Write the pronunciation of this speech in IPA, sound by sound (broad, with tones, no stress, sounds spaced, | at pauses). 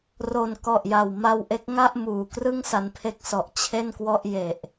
r o˨˩ n k ɔ˨˩ ʔ j a˨˩ w m a˧ w ʔ e˦˥ k̚ ŋ a˥˩ ʔ m uː˨˩ k r ɯ˥˩ ŋ s a˧ n pʰ e˦˥ k̚ s ɔ˨˩ ʔ t͡ɕʰ e˥˩ n k w ɔ˥˩ ʔ j e˨˩ ʔ